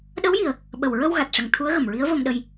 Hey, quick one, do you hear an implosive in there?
yes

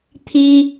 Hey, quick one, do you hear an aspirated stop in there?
yes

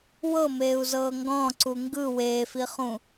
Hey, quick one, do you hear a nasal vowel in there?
yes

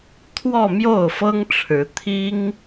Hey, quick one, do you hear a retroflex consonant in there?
yes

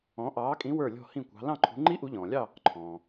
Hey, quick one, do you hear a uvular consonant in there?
no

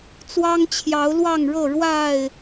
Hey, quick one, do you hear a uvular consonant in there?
no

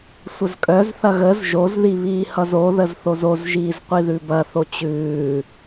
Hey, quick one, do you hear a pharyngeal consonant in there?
no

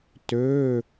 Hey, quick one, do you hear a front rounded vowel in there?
yes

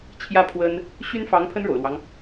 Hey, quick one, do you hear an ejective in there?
no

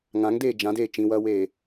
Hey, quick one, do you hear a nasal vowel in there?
yes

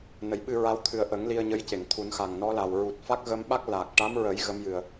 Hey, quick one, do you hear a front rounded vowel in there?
no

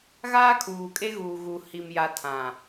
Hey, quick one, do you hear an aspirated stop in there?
yes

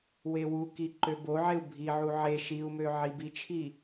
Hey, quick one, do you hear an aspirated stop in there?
yes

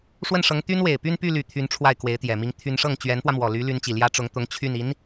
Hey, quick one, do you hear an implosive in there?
no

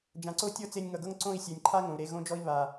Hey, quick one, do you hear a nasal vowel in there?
yes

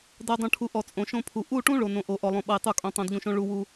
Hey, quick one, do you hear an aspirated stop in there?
yes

